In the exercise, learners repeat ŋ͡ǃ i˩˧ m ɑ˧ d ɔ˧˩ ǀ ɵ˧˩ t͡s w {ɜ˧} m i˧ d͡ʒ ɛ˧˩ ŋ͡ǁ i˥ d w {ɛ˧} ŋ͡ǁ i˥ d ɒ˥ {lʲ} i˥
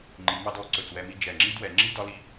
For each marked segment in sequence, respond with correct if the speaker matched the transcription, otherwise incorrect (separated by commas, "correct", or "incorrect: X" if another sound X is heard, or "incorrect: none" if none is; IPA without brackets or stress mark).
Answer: incorrect: ɛ˧, correct, incorrect: l